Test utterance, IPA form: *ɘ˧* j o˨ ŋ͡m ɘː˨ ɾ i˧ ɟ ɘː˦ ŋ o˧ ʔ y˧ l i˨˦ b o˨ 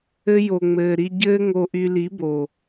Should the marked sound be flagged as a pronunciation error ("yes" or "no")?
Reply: no